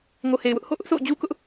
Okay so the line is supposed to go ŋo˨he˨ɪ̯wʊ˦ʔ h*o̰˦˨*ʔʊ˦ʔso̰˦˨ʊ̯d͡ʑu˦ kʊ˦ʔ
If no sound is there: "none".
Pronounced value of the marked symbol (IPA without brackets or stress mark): o̰˦˨